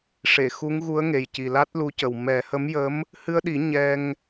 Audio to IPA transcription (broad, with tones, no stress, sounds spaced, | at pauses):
ʂ e˨˩˨ x u˧˥ ŋ ɣ u˧˥ ə̯ ŋ e˨˩ j c i˨˩ l a˦˥ t̚ l u˧˥ c ə˨˩ w m ɛ˨˩˦ h ə˧˥ m j ə˧˥ m | h ɨ˧ ə̯ ɗ i˨˩˦ ɲ ɛ˧ ŋ